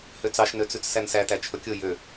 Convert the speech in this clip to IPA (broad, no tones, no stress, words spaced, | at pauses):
høt͡sɑʃnøt͡sʉt͡s sænsætæ t͡ʃʰɵkʲo jø